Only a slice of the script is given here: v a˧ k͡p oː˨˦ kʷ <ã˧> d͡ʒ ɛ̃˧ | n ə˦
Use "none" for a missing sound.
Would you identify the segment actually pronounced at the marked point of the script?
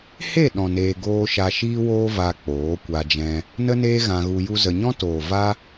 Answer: a˧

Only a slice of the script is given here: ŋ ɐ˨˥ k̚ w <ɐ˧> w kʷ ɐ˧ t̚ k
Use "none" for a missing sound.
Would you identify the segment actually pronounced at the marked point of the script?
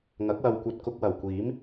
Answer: ɐ˧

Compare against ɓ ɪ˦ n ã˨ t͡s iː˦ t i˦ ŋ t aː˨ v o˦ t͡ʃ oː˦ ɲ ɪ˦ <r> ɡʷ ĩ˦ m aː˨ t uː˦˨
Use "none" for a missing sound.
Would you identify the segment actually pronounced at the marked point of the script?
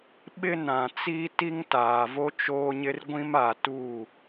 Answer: r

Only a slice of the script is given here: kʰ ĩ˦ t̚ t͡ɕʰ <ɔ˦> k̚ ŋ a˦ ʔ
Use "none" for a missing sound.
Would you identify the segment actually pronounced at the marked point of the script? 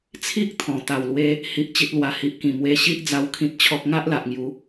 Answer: ɔ˦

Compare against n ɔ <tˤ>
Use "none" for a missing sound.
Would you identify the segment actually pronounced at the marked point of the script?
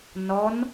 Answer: n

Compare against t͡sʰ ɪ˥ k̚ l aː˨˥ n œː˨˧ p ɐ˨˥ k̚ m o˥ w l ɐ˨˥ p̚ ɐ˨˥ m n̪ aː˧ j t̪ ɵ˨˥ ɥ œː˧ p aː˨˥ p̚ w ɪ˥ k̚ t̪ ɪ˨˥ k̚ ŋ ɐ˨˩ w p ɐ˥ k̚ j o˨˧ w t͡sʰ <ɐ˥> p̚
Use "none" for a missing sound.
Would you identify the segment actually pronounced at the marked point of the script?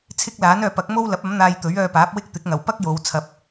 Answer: ɐ˧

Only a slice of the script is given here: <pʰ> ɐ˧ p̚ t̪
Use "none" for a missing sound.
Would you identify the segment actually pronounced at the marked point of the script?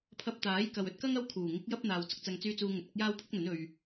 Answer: pʰ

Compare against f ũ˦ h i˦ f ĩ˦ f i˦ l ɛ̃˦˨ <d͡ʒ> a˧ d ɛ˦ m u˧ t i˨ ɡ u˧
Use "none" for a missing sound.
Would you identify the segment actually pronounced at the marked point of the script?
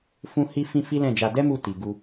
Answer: d͡ʒ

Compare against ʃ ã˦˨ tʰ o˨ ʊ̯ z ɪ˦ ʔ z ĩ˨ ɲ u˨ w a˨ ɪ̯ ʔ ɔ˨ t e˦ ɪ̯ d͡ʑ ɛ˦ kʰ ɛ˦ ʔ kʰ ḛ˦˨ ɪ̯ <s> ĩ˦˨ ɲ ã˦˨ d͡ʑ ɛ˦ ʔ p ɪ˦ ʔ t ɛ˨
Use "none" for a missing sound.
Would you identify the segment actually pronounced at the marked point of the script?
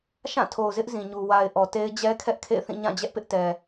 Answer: θ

